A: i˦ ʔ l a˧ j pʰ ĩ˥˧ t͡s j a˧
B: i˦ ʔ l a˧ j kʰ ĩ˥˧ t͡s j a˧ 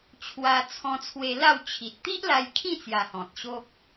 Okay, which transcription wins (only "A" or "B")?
B